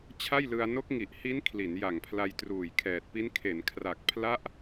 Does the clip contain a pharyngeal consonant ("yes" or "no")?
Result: no